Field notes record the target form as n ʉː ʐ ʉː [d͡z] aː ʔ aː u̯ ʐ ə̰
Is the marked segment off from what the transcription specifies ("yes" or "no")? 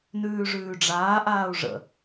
yes